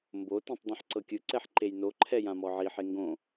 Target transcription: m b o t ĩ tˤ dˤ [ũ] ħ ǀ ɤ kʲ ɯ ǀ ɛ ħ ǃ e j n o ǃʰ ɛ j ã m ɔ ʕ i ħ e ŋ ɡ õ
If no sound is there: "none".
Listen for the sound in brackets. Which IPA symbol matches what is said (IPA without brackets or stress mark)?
ũ